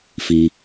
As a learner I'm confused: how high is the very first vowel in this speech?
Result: high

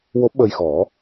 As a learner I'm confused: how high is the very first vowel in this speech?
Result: mid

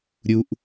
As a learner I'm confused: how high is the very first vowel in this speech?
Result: high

